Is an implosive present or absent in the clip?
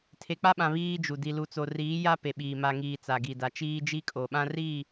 present